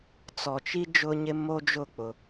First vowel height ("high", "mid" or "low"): mid